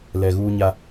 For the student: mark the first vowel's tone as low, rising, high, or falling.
low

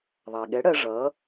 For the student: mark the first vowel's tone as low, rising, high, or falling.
low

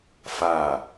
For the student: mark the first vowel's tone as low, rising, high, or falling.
falling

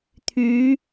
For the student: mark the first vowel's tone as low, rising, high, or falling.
rising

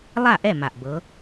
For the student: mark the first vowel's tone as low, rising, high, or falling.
falling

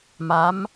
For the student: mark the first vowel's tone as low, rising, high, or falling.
rising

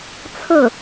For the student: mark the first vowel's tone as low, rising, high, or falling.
falling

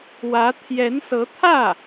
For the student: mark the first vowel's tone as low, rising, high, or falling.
rising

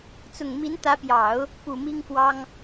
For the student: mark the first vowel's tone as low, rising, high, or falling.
low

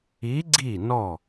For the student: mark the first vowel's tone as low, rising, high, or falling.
rising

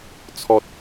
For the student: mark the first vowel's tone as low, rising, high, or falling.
low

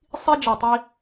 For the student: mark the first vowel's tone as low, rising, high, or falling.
high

